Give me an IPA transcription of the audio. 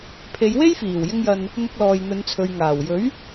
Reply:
pʰ e˨˧ j w e˥ j f iː˨˩ w j ɪ˧ ŋ j ɐ˨ n | n̪ ʊ˧ k̚ l ɔː˨ j n̪ ɵ˨˧ n t͡sʰ ɵ˨ ɥ ŋ aː˨˩ w j ɵ˨˥ ɥ

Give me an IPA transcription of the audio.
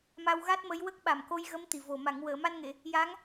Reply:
m a˧ w ɣ a˦˥ t̚ m ə˧˥ j w ə˦˥ k̚ ɓ a˨˩ m k o˧ j ɣ ə˧˥ m t̪ i˨˩ v o˨˩ m a˨˩˨ ŋ w əː˨˩˨ m a˧ n ŋ e˨˩˨ | j a˧˥ ŋ

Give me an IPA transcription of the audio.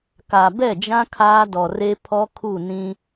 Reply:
k a˨ b ɛ˦˨ d͡ʒ ã˦ kʰ aː˦ d ɔ˨ r e˦ pʰ ɔ˦ kʰ u˦˨ n ĩ˦

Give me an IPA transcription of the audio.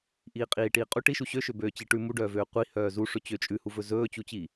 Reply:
ʔ iː qʼ iː ʈ iː qʼ u ʈ i ʃ u ɕ ø ʃ ø b øː t͡ɕ i ʈ ʉ m u ɖ œː v øː qʷ i h œː z u ʂ ɵ t͡ɕ ø t͡ʃʼ ʉ h u v ɵ z ɵː t͡ɕ u t͡ɕ i

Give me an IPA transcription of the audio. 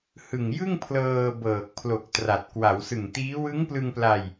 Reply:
h ɯ˨˩ ŋ j ɯ˥˩ ŋ pʰ l ɤː˧ b ɤː˨˩ k̚ pʰ l o˨˩ k̚ t r a˨˩ t̚ k w a˩˦ w s ɯ˨˩ ŋ t iː˦˥ w ɯ˦˥ ŋ p l ɯ˧ ŋ p l a˧ j

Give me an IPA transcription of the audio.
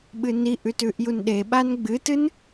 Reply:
ɓ ɨ n i ʔ ʉ t ʉ ʔ j u n ɗ e ɓ a n ɡ͡b ɨ t ɨ n

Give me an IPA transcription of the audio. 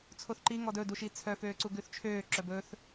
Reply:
t͡sʰ o θ ǃ i ŋ ɔ d ɵ d u ʃ i t͡sʰ œ f øː ǀ u ɡ ʉ θ t͡ʃʰ øː ǁ œ b ɵː θ

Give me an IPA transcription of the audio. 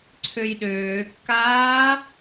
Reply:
ǀʰ ø j ɗ øː kː aː

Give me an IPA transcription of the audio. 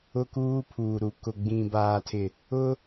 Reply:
ʊ˦ k uː˦ pʰ u˨ ɾ u˨ k ʊ˨ ɡ͡b ĩ˨ b aː˨ tʰ ɪ˨ | ʊ˦

